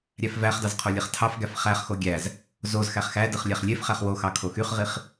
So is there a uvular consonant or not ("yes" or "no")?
yes